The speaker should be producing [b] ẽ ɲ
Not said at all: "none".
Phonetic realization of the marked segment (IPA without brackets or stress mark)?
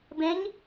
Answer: b